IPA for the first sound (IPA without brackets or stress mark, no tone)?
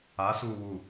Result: a